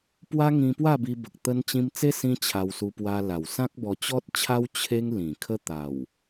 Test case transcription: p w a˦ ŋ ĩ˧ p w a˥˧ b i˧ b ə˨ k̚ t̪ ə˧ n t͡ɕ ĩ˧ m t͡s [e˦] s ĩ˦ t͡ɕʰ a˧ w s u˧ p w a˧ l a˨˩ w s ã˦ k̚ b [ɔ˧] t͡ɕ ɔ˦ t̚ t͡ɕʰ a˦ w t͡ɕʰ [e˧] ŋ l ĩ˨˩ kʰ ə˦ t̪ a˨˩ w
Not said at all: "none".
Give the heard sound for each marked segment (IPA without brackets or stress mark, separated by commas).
e˦, ɔ˧, e˦